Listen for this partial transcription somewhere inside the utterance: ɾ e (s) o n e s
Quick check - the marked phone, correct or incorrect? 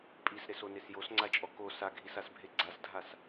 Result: correct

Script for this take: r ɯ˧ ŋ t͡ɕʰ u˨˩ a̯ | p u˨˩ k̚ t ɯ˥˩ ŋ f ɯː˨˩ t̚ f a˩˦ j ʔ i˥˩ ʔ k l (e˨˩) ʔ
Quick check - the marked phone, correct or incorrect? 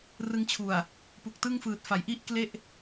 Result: incorrect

